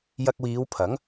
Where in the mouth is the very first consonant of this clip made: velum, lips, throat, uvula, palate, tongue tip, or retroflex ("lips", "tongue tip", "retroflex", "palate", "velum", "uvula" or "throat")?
palate